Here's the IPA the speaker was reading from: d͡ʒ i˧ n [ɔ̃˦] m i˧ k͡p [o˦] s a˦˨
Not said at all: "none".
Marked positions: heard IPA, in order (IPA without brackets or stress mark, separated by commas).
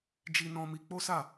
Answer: ɔ̃˧, o˦